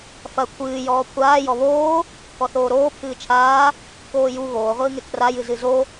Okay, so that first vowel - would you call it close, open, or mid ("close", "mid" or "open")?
open